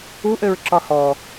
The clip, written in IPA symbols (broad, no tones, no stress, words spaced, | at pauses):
uʔøɹǁɒ hɔ